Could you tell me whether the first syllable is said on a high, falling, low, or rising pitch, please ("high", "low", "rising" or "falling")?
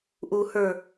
low